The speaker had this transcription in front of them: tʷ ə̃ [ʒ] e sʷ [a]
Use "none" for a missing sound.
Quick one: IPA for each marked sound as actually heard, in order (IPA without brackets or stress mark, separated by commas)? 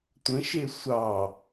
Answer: ʃ, ɑ